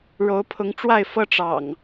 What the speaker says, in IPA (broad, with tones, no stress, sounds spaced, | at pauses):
ɻ o˨˦ ʊ̯ pʰ ʊ˨˦ ŋ ʈ͡ʂ w a˥˨ ɪ̯ f ɤ˦ ʈ͡ʂ ɑ̰˨˩ ŋ